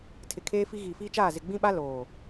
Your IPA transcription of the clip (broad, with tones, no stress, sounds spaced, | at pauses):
tʰ ɪ˨ kʰ eː˦ f i˦ ɣ iː˨ f iː˦ t͡ʃ aː˦˨ z ɪ˨ ɡ͡b ĩ˦ ɓ a˦ l oː˨